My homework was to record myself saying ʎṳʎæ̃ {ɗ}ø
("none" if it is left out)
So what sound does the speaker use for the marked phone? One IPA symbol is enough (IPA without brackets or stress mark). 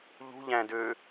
d